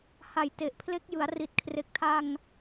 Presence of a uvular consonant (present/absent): absent